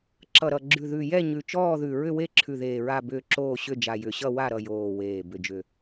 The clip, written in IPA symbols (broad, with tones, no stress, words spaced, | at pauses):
ǁʌ˨˩ ɾʌ˨˩ɡ͡ǁʉ˨˩ ðʉ˨˩jɛ˦˨ ɲʉ˨˩t͡ʃɔː˦˨ðʉ˨˩ ɹʏ˦˨we˦˨ǁʰʉ˨˩ ðeː˨˩ɹa˦˨bʏː˦˨ ǁoː˦˨ɕʏ˦˨d͡ʒa˨˩ jʏ˨˩ɕʌ˦˨wa˦˨ ɾʌ˦˨joː˨˩ weː˨˩ bʏ˨˩d͡ʒʏ˨˩